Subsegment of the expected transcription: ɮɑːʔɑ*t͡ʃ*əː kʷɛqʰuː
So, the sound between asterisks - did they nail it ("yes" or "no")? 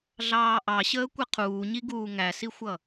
no